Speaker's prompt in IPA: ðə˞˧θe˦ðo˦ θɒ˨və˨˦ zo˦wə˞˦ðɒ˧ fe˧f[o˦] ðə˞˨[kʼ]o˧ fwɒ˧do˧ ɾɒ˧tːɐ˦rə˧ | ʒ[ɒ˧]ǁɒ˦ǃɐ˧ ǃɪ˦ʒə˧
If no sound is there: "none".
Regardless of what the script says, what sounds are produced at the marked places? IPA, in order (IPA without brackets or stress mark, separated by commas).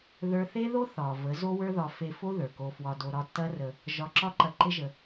o˦, k, ɒ˧